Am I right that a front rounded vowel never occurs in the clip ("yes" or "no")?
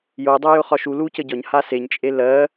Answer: yes